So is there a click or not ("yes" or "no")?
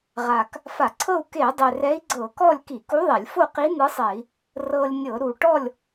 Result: yes